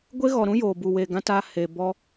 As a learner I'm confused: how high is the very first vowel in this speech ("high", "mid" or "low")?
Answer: mid